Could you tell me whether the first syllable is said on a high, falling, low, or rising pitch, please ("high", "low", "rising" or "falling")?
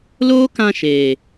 high